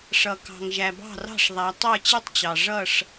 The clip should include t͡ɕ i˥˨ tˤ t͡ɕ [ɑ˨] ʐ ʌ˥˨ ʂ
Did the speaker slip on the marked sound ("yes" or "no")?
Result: no